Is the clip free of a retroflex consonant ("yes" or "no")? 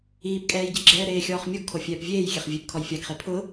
yes